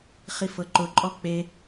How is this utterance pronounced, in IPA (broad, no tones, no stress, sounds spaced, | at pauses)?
χ i f ɤ ǃ ʊ ǃʼ ɔ k͡p e